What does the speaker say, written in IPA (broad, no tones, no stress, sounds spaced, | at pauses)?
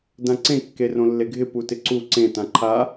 d ã ǀ ẽ kː e r õ lː e ɡʱ ɪ p u t ɪ ǀ u ǀ ẽ t ã ǃʰ a